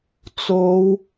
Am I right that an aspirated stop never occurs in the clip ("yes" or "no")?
yes